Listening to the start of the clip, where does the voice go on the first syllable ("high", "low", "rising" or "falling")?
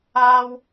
high